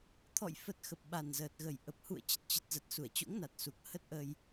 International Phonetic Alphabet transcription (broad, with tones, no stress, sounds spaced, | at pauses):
t̪ʰ ɔ̰˧˨ j f ə˨˩ t̚ x ə˨˩ p̚ ɓ a˨˩ n z əː˨˩ t̚ ɣ ə˨˩ j ʔ ə˨˩ p̚ h ṵ˧˨ ə̯ t͡ɕ ə˨˩ t̚ t͡ɕ ə˨˩ t̚ z ə˨˩ t̚ s u˧˩ ə̯ t͡ɕ o̰˧˥ ŋ n a˨˩ t̚ s u˨˩ k̚ h ə˦˥ t̚ ʔ ə˧ j